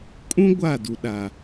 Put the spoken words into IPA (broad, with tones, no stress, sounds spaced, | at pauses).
kʼ ũ˦ ɡʷ a˦˨ d u˨ ɗ a˨